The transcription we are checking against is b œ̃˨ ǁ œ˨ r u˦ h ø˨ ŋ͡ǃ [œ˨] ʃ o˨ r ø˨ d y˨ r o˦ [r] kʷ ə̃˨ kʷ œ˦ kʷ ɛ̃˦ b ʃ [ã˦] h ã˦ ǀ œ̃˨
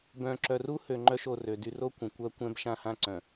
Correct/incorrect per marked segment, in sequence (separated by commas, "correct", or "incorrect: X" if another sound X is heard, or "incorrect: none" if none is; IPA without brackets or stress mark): incorrect: œ˦, incorrect: none, correct